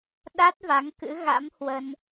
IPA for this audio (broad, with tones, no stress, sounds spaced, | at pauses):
ɗ a˦˥ t̚ v a˨˦ ŋ k ɨ̰˧˥ ɣ a̰˧˥ m h w ə˧ n